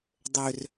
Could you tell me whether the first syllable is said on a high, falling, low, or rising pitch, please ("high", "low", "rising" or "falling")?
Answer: low